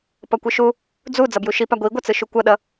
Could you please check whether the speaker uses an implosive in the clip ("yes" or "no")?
yes